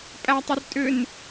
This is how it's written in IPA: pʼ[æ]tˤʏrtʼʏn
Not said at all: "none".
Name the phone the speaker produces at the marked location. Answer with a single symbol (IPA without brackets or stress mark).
æ